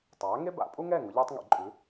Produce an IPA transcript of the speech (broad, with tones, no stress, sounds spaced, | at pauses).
tˤ aː˨˥ ŋ e˥ b a̰˨˩˦ pʼ u˥ ŋ ɛː˥˨ ŋ ʊ˨˥ ʎ ɛː˥ tˤ ŋ ɛ̰˨˩˦ ǃʼ ʉ˨˥